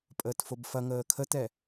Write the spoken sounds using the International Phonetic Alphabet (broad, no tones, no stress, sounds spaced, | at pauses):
pʼ əː t f o b f ɐ ŋ əː kʰ ə t ɛ